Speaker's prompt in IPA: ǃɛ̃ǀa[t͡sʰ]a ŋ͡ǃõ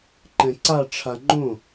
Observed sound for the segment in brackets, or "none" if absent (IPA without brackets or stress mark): ʈ͡ʂʰ